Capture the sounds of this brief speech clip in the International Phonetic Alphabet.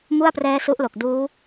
m u˥˩ a̯ p r ɛː˦˥ s u˦˥ ʔ l o˨˩ k̚ d uː˦˥

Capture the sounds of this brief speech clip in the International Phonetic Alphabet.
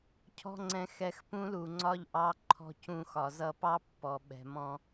cʰ ɔ̤˦ ŋ͡ǀ ɛ̃˧ x ɛ˧ x p ũ˦ l u˨ ŋ͡ǀ ɒ˦ ʎ ʔ ɑ˦ ǃʰ ɔ̤˦ c ũ˧ x ɒ˨ z ʌ˧ p ɑ˦ pː ɔ˨ ɓ ɛ̤˨ m ɔ̃˧

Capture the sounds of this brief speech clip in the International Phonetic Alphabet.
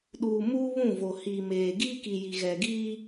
ɗ uː˨ m uː˦ β ũ˦˨ v o˨ h iː˨ m eː˨ ɡ iː˦ k i˨ j i˨ ɣ ɛ˨ ɡ iː˦

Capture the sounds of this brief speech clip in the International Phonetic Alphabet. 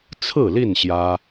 t͡sʰ ɹ̩˥˨ l i˥˨ n ɕ j ä˦

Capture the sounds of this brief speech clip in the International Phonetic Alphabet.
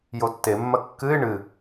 j o tː e mː ɐ kː ɨ ɪ̯ ɳ ɨ

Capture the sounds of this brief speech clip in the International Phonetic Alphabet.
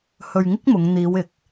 h ɵ˧ ɥ ŋ ɪ˥ k̚ m ʊ˨˧ ŋ n̪ iː˨˧ w ɪ˨ k̚

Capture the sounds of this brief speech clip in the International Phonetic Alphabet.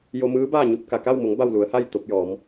j o˧ m ɯː˧˥ b aː˥˨ ɲ u˥˨ p̚ k a˩ k a˥˨ w m o˩˧ ŋ b a˥˨ w l u˩˧ ə̯ h a˥˨ j t̪ o˧ p̚ j ɔː˩˧ m

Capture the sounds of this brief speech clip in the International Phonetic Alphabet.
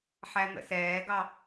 ħ æ n̪ ə̰ s ɛː ɡ ɑ

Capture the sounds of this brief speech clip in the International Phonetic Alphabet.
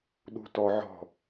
ɗ ṳ t ɔ ʕ ɔ̤

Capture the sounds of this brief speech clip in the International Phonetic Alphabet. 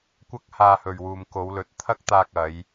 kʷ ɐ˥ k̚ h aː˧ h ɵ˨ ɥ w uː˨ m k o˨˧ w l ɵ˨˥ t̚ t̪ʰ ɐ˥ k̚ t̪ aː˧ k̚ ɐ˨˧ j

